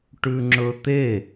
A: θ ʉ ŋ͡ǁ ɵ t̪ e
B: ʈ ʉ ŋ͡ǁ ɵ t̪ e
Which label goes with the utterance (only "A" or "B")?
B